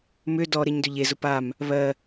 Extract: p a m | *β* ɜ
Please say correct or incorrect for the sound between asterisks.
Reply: correct